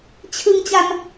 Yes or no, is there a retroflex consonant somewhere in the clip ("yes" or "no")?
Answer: no